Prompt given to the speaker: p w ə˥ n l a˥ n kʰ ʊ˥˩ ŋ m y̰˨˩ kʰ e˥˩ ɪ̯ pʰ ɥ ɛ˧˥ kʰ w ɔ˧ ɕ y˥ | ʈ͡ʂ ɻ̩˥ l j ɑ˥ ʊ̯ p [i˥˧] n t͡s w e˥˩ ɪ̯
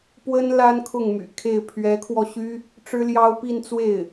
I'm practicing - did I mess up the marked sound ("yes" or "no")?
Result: no